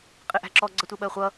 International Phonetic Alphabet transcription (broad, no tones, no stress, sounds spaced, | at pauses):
qʼ ɪ ʔ æ̤ ǁ ɔ ɡ͡ǀ ʌ tʷ ɛ ɓ ɜ χʷ ʌ